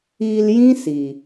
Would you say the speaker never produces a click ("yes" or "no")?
yes